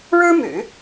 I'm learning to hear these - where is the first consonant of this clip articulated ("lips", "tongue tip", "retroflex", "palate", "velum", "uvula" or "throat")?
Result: retroflex